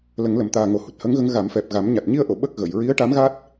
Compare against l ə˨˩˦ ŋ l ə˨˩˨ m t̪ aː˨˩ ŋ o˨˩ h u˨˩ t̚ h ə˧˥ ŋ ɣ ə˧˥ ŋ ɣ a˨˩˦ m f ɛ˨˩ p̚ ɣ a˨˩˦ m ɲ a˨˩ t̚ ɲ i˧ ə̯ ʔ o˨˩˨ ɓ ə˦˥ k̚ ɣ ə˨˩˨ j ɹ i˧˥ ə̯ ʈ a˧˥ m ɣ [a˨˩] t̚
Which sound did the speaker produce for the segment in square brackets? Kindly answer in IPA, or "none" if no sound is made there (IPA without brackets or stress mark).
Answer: a˦˥